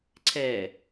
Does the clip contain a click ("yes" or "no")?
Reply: yes